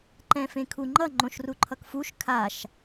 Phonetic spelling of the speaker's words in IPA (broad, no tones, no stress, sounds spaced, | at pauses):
ǃ ɛ̃ f ẽ kʰ u ŋ͡ǃ ʌ ŋ͡ǃ õ ʃ r u ǃʰ ʌ k f u ʃ kʰ a ʃ